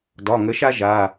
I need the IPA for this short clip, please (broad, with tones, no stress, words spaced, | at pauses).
dɒ˩˧˩ŋə˨˥ʃa˥ ʒa˩˧˩